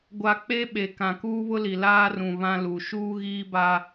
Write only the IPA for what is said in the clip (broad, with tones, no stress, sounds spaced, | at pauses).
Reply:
ɡʷ a˦ k͡p e˦ ɓ e˨ k ã˨ k uː˦ β ʊ˦ l i˨ l aː˦ r ũ˨ β ã˦ l u˨ ʃ uː˦ ɣ iː˦ b a˦